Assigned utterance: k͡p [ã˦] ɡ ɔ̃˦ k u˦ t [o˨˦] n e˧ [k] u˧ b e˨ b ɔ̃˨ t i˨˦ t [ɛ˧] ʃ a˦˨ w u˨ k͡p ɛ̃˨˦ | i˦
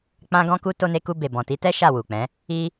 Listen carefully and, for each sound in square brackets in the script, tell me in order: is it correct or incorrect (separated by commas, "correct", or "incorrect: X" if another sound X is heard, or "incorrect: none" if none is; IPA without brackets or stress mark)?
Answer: correct, incorrect: o˧, correct, incorrect: ɛ˦